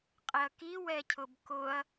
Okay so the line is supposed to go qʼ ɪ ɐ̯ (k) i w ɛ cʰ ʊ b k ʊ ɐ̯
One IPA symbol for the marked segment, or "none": k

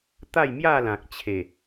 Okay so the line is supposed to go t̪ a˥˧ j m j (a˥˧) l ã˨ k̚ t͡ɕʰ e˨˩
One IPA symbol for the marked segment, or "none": a˥˧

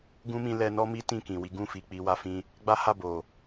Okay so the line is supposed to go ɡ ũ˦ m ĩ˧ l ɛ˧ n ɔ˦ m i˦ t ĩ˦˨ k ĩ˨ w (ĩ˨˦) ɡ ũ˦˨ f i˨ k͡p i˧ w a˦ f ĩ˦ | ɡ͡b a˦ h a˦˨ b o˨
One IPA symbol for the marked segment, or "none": i˨˦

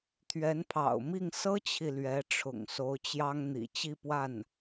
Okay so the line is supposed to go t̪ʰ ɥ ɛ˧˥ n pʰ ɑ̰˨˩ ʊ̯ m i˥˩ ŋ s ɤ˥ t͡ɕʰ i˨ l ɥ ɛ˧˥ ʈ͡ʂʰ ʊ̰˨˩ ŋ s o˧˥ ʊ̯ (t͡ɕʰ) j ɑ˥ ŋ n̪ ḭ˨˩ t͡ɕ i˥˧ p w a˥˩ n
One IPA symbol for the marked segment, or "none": t͡ɕ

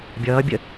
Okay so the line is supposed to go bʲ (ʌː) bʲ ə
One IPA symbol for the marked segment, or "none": ʌː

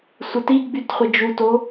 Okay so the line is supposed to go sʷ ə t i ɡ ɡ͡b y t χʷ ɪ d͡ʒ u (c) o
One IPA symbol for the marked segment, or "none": t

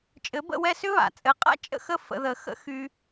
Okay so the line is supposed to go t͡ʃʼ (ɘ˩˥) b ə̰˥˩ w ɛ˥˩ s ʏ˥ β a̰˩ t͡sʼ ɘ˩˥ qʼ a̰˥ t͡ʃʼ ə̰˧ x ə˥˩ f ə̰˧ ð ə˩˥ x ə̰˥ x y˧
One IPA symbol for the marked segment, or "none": ɘ˩˥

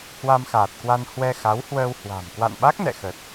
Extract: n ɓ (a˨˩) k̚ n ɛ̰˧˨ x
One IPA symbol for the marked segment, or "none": a˦˥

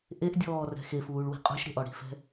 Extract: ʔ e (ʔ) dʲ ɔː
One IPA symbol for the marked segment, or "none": ʔ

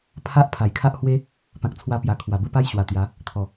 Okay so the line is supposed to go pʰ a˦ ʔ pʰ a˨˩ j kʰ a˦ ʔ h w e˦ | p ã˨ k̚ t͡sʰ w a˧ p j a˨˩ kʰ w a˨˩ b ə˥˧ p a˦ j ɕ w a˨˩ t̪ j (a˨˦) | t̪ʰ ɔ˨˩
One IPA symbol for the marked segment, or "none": a˨˦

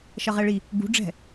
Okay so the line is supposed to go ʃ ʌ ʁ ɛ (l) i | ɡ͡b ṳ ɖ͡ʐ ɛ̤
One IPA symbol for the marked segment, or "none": ɭ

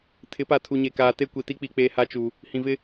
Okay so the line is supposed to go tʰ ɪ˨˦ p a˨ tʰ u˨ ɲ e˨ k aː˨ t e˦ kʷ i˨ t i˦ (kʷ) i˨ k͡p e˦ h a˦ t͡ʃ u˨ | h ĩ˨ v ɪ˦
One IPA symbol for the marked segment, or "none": k͡p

